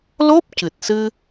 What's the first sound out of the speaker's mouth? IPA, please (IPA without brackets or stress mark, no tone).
l